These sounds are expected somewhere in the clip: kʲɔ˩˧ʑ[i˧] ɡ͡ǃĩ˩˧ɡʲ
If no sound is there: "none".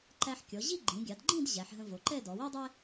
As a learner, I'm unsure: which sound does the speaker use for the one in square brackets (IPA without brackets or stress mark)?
i˥˧